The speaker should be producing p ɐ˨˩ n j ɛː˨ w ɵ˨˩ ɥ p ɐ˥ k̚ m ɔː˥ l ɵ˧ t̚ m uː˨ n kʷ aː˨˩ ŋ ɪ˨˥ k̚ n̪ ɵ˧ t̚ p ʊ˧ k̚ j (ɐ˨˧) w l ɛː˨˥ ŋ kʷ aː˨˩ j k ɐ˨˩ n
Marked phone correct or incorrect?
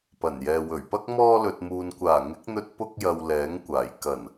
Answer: incorrect